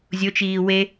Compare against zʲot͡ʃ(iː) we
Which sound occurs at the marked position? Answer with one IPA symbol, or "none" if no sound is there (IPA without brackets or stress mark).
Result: iː